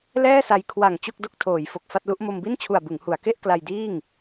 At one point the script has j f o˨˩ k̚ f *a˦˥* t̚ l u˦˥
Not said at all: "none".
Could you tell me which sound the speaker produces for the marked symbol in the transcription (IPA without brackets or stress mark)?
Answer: a˥˩